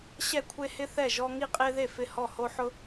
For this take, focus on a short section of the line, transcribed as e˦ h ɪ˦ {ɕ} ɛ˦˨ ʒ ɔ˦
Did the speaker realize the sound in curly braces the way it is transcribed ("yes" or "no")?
no